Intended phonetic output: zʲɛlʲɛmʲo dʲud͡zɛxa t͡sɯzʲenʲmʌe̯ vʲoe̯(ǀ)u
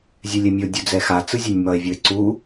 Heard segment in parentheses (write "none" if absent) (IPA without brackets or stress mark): ǀ